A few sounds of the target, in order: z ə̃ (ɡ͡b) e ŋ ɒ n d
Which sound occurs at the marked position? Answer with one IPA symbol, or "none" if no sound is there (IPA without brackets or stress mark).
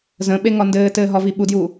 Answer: ɓ